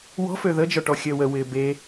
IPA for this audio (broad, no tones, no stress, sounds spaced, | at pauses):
w ɔ̤ f ø ð ə d͡ʒ ɔ ʈ ɔ xʲ əː w ə w ɪː b e